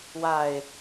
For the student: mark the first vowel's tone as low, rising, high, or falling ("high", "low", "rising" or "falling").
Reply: falling